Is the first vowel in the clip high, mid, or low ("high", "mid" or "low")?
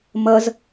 mid